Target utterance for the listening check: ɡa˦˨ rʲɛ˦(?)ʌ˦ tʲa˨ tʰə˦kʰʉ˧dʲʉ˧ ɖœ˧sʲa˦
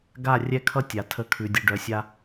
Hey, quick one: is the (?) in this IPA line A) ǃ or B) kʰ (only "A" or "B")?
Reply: B